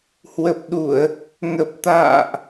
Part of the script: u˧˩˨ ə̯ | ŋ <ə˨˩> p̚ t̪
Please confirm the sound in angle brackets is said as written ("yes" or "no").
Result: yes